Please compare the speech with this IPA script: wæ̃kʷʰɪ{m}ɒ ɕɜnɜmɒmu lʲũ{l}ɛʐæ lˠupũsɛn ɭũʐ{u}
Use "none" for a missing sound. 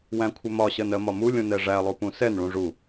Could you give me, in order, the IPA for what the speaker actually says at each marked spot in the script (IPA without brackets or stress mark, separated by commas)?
m, n, u